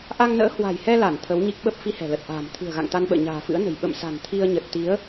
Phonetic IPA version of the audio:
ʔ a˧ ŋ n ə̰ː˧˥ h w a̤˨˩ j h ɛ˧ l a˧˩ n t̪ʰ ə˨˦ w ɲ i˦˥ k̚ ɓ ə˦˥ p̚ f i˧ h ɛ̤˨˩ l ə˨˩ t̚ ʔ a̤ː˨˩ m t̪ʰ ɨ̤˨˩ ə̯ ɣ a̰˧˨ ŋ t̪ a˧ n ɓ ə̰ː˧˨ ɲ a̤ː˨˩ f ɨ̰˧˥ ə̯ n ə̤˨˩ j ɓ ə̰˧˨ m s a̤˨˩ n t̪ʰ i˧ ə̯ ɲ ə˨˩ t̚ t̪ i˨˦ ə̯

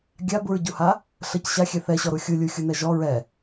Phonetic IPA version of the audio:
ɡʲ a b u ɹ ɟ u h a | ɬ ə c ɕ a xʲ ɛ θ ɛ ɕ ɔ ɾ u xʲ u lʲ u xʲ u n ɛ ʒ ɔ ɹ ɛ

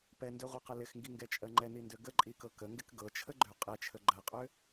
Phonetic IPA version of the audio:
p ɛ n d ø ʁʷ ɤ q ə l ɪ x ŋ ɡ i ŋ ɡ ɛ t͡ʃʼ ɜ ŋ͡ǃ ɛ n i n d ø ɡ ə ǃʼ i k ɤ k ə ŋ ɡ ɪ k ɡ ɤ t͡ʃʰ ə ɡ͡ǃ ø qʼ ɛ t͡ʃʰ ə ɡ͡ǃ ɜ qʼ ø

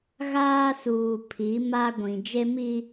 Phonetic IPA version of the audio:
ɣ aː˦ s uː˨ pʰ i˨˦ m a˦ ɡʷ ĩ˨ d͡ʒ e˦ m i˦

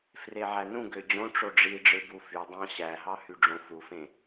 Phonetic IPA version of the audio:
f r e ʕ æ n ũ ɡ ø d͡ʑ õ ʈ͡ʂ o ɖ͡ʐ i ɖ͡ʐ ɯ b u f y dˤ ɑ̃ ɕ æ ɦ ɑ h y ɖ͡ʐ õ f u f ẽ

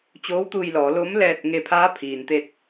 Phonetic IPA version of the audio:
t͡ɕ oː˧˥ w t̪ uː˧ j l ɔː˩˧ l o˧˥ m l ɛː˧ t̚ ŋ e˧ pʰ aː˧˥ pʰ iː˩ n t̪ e˧ t̚

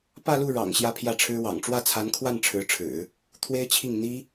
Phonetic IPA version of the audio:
p ä˥˧ l u˥˩ ɻ ɑ̰˨˩ ŋ ɕ j ä˥˧ pʰ j ä˥˩ ʈ͡ʂʰ ɻ̩˥ w ɑ̰˨˩ ŋ ʈ͡ʂ w ä˥˩ t͡sʰ a˧˥ n kʰ w a˥˩ n ʈ͡ʂʰ ɻ̩˧˥ ʈ͡ʂʰ ɻ̩˨˩˦ | t̪ʰ w e˥ ɪ̯ t͡ɕʰ i˥˩ ŋ n̪ i˥

